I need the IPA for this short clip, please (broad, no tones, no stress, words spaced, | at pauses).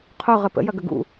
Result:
qʰo ʁəpə̰ jɐɡəɡṵ